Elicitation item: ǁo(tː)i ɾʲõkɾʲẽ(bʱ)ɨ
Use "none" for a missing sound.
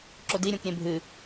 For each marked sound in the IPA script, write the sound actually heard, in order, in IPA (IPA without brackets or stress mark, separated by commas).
d, bʱ